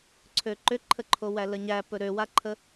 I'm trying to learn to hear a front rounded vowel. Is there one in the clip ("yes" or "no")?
yes